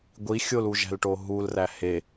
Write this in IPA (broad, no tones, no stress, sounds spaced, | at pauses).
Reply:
ɡʷ i xʲ o l u ʒ æ̤ l ʈ o ɦ u l r æ h e